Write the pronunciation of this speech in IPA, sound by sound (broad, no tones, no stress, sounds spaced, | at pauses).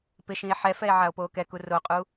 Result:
p ɪ ʃ ĩ e̯ ħ ɛ f ɛ e̯ ʕ a o̯ p oː k ɛ k u r o qʼ u